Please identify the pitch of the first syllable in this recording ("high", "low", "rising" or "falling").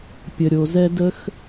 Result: low